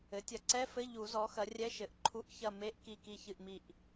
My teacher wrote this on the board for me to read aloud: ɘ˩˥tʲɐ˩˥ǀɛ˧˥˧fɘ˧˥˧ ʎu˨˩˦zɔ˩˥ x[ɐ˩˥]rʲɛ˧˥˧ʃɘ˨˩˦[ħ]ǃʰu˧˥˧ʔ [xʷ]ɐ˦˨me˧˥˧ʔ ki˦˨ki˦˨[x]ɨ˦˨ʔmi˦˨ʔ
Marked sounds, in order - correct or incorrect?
correct, incorrect: ʔ, incorrect: ç, incorrect: ç

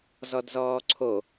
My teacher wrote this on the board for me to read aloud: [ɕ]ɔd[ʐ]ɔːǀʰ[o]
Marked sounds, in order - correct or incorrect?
incorrect: z, incorrect: z, correct

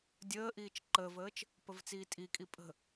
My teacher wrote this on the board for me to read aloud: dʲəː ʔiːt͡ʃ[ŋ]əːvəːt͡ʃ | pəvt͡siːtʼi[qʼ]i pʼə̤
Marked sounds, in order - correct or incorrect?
incorrect: ǃ, incorrect: kʼ

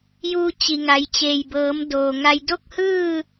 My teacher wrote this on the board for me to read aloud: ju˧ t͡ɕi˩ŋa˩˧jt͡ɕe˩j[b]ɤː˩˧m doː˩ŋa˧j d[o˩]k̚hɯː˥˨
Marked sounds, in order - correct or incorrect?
correct, incorrect: o˥˨

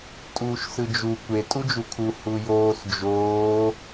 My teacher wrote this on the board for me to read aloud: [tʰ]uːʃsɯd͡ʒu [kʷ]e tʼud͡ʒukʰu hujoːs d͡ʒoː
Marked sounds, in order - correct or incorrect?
incorrect: tʼ, correct

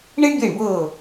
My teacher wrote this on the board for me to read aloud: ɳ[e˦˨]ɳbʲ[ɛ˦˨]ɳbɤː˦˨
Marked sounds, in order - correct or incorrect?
incorrect: e˥, correct

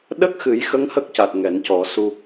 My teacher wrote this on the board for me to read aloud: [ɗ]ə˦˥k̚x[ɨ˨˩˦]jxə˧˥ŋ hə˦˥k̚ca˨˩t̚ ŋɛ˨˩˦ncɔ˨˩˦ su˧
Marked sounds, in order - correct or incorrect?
correct, correct

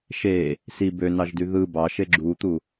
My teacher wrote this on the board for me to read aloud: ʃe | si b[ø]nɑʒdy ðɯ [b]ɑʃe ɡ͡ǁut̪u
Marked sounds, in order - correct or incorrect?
correct, correct

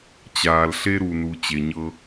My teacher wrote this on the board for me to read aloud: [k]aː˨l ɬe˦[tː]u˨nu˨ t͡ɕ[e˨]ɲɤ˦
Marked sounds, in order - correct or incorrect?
incorrect: t͡ɕ, incorrect: ɾ, correct

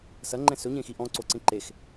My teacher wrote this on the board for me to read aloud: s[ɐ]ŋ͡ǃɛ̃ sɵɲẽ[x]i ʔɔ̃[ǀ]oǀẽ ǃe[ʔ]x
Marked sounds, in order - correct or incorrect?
correct, correct, correct, incorrect: none

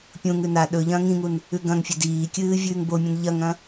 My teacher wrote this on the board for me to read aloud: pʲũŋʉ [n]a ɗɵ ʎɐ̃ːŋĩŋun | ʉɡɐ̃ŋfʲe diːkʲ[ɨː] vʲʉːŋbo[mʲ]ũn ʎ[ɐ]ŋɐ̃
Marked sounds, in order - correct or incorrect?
correct, correct, correct, correct

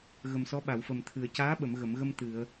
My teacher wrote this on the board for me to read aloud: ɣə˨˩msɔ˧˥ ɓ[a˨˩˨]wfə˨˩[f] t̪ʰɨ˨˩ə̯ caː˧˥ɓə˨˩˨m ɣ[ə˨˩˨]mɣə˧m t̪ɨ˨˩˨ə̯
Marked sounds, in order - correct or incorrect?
correct, incorrect: m, correct

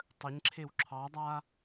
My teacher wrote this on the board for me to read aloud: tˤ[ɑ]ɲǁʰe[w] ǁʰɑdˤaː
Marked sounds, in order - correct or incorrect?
incorrect: ə, correct

